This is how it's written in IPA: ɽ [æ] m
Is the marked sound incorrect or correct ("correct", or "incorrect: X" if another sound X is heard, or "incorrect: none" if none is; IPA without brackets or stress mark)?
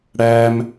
correct